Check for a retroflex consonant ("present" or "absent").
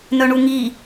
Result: present